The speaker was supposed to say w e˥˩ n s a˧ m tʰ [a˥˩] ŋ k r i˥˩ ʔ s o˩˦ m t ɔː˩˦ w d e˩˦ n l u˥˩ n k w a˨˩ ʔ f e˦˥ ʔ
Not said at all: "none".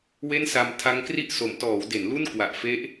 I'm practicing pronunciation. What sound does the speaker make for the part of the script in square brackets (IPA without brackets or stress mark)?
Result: a˦˥